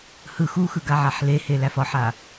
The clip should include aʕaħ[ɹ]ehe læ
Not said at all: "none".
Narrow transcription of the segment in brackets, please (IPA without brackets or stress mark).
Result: l